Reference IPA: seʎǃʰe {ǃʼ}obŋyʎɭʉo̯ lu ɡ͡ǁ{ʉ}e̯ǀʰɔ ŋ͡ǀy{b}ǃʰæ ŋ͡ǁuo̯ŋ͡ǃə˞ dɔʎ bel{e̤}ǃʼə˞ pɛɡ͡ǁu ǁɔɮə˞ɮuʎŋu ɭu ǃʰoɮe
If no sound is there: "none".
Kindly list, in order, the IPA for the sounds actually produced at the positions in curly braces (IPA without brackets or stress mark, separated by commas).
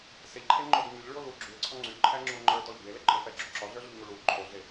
ŋ͡ǃ, ʉ, b, e